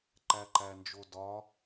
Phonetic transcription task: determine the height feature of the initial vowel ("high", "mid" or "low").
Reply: low